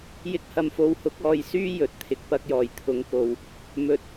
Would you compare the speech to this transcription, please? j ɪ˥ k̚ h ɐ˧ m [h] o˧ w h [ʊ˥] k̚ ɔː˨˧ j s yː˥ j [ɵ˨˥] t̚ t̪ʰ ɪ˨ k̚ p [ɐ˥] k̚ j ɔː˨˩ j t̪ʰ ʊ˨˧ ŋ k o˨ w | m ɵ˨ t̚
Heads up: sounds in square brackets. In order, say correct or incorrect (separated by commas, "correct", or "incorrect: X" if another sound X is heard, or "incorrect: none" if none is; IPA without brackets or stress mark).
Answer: incorrect: f, incorrect: ʊ˨˥, correct, incorrect: ɐ˧